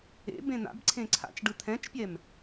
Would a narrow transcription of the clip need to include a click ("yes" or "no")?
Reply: yes